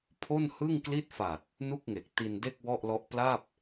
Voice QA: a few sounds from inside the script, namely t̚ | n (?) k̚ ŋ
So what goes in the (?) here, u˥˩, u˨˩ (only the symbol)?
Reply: u˥˩